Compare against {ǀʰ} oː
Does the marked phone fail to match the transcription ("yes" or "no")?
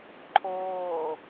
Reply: yes